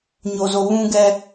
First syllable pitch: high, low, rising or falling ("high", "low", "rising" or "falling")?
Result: low